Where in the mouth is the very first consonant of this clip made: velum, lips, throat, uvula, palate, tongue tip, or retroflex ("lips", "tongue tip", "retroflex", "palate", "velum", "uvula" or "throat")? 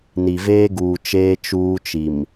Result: tongue tip